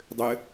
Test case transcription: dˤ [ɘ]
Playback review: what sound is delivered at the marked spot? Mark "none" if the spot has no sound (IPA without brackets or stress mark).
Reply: ɘ